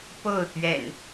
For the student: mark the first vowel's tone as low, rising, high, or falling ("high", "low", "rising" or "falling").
falling